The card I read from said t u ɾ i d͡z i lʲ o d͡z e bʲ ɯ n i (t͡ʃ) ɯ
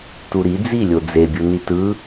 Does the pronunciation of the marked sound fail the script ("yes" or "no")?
yes